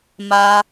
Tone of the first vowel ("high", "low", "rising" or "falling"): high